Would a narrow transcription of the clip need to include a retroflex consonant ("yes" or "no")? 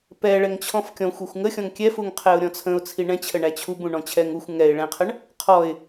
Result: yes